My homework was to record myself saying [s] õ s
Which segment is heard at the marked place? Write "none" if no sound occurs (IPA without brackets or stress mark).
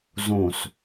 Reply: z